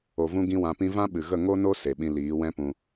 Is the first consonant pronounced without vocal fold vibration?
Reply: no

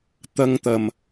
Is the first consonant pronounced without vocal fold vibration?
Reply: yes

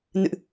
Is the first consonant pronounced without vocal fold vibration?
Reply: no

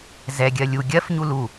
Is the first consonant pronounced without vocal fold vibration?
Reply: no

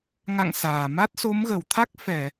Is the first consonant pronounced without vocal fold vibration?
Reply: no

